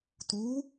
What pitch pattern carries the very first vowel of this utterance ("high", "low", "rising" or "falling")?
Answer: rising